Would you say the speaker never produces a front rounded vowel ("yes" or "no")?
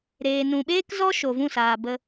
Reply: yes